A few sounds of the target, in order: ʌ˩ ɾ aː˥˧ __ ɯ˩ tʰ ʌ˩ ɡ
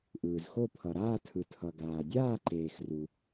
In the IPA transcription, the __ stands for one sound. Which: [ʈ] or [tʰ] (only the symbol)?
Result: tʰ